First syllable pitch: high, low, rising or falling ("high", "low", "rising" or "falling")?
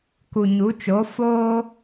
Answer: low